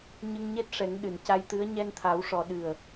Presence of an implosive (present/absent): present